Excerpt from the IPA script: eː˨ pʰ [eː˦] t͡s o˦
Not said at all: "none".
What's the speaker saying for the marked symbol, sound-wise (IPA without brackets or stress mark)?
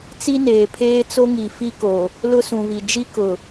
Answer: eː˦